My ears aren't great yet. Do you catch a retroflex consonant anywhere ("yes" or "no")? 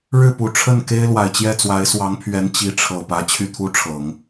yes